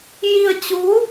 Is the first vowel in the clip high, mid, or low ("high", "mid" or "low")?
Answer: high